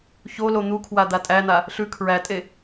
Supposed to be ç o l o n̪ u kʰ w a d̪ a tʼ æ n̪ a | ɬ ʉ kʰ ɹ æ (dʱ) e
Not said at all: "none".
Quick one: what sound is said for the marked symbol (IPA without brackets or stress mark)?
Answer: tʼ